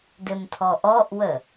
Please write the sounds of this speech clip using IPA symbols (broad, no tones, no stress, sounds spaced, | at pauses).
d ɘ m tʰ ɔ ʔ ɔ ʔ w ə